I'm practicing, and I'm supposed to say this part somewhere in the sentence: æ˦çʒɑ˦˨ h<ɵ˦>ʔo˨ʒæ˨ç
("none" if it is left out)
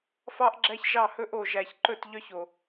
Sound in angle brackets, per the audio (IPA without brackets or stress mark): ɵ˦